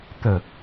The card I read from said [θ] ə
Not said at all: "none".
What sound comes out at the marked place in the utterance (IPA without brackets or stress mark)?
t̪